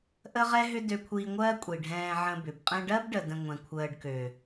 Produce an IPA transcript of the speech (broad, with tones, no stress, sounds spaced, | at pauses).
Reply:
ʔ ə˦ ʁ ɛ˦ ɦ ʏ˦ d ø˧ kʷʰ iː˧ ŋʷ ɜː˦ kʷʼ i˨ ɖʱ ɛ̃ː˧ ʕ ə̃˧ b ʏ˨ b qʼ ɛ̃˧ ɖ ɜ˦ b ɖ ə˨ d ə̃˨ ŋʷ ɛ̃˨ kʷʰ əː˧ ɖ k ø˨